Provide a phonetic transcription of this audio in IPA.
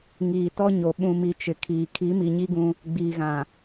ŋ iː˨ t ɔ˦ ɲ o˨ ɓ ũ˨ m i˨ t͡ʃ ɪ˨ kʰ iː˨ kʰ i˨˦ m i˨ ɲ i˦ ɡ ũ˦ | ɡ͡b iː˨ ɣ ã˨

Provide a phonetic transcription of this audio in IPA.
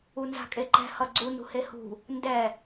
u n z a̤ kʼ e ǃ ɛ̤ h ʌ ɡ͡ǀ u n ṳ h e h ṳ | n d ɛ

